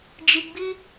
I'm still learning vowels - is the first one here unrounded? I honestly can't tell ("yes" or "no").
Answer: yes